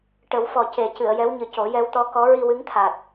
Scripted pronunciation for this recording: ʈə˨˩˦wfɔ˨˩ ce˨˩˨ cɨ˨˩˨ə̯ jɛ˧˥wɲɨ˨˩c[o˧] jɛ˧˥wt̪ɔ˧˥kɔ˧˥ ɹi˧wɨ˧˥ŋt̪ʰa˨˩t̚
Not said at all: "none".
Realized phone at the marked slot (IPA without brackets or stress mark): o˨˩˦